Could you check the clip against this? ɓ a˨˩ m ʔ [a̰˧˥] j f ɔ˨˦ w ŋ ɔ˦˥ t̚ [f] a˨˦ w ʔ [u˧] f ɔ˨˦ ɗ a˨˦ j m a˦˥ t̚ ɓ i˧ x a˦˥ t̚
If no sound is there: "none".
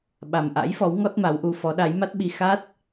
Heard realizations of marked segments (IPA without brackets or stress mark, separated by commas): a̰˧˥, m, u˧